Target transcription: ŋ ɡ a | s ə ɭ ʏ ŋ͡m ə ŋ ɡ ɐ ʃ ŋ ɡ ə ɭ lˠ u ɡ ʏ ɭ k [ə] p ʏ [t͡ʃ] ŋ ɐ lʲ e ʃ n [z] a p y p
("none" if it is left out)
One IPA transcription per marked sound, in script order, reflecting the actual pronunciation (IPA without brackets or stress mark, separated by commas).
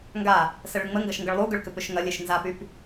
ʏ, ʃ, z